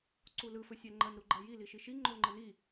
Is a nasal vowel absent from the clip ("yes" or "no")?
yes